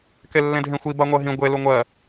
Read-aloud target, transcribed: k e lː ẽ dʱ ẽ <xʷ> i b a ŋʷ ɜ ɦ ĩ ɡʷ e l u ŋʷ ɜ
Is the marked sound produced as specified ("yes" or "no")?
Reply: yes